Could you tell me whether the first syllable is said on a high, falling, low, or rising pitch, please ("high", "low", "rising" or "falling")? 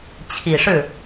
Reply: low